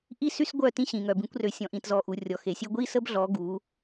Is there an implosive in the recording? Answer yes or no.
no